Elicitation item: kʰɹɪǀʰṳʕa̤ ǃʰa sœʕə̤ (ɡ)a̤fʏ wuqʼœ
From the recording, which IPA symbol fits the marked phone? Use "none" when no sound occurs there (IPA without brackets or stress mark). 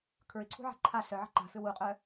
ǃ